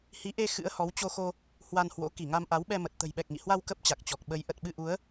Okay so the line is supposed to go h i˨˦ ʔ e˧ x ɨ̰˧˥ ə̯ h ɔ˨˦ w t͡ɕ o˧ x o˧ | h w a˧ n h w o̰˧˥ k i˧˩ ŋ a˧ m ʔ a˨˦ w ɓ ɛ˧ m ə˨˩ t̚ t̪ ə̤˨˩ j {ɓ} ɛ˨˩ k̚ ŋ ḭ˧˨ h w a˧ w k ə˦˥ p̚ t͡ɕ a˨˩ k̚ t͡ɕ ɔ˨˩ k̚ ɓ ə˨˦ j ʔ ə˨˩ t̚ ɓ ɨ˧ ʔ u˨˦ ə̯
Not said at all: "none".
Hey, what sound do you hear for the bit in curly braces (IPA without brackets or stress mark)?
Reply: ɓ